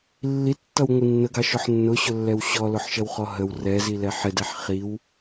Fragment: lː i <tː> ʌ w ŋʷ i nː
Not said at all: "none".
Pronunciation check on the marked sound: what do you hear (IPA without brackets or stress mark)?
tː